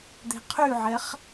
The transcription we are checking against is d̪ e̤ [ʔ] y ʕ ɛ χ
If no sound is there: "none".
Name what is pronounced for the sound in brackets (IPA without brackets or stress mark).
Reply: qʰ